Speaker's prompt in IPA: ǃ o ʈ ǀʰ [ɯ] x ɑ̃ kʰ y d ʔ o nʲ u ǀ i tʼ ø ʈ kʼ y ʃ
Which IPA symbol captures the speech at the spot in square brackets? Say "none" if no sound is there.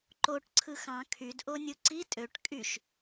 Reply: ɯ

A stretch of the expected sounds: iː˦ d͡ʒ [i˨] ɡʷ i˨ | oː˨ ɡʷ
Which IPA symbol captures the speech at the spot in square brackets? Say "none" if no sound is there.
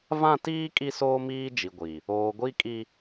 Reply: i˨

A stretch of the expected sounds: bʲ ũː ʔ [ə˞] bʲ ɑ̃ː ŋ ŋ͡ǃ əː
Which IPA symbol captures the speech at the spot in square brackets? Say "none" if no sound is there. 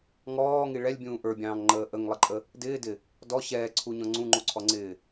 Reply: ə˞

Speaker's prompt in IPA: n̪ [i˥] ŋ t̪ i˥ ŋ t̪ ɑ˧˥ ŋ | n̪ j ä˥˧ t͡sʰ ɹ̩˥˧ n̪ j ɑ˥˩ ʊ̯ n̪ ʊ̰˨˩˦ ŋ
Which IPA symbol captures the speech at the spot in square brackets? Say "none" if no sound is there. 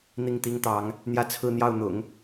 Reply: i˥˩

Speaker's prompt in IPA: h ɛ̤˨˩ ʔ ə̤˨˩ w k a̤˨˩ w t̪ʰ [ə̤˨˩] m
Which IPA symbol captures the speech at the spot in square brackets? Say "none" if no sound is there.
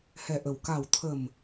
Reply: ə̤˨˩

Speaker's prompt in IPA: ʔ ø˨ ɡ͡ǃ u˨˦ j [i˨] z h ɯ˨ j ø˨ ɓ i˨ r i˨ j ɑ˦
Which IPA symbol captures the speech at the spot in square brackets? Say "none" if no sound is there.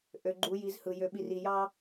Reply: i˨˦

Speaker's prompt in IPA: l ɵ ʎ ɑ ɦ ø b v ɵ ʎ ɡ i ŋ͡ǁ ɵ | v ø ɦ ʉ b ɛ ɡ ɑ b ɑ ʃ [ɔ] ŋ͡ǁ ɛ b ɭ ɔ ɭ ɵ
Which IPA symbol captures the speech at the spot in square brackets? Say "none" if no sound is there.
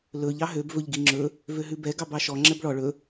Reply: ɔ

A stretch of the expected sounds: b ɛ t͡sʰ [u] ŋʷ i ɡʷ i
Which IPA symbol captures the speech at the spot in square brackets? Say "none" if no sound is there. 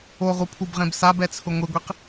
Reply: ʊ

